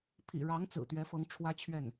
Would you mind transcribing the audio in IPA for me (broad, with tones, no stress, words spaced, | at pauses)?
pʰḭ˨˩ɻɑ˧˥ŋ t͡sɹ̩˨˩t̪ɥɛ˧˥fɤ˧˥ŋ ʈ͡ʂʰwä˥t͡ɕʰɥɛ˥˩n